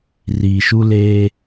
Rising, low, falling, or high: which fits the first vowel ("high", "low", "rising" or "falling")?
low